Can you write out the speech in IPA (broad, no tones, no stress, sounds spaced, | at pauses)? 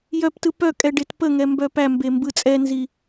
j œ p t ɯ p œ kʼ ɛ ɖ e t p ə ŋ ɛ m b œ p æ m b e m b ɯ t͡sʼ ɛ n z i